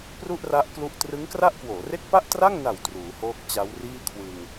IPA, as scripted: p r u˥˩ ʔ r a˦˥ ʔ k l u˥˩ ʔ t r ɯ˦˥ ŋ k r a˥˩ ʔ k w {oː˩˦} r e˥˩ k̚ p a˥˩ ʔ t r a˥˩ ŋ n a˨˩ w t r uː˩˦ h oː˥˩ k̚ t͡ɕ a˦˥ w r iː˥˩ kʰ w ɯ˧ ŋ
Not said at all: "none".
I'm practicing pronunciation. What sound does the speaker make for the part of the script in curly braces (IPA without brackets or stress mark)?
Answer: oː˩˦